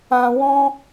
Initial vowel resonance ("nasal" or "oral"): nasal